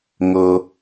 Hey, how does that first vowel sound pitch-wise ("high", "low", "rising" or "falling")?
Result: high